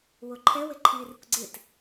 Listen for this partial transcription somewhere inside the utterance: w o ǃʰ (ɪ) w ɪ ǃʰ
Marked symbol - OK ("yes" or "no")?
no